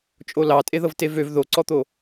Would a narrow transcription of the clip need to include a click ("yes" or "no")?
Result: yes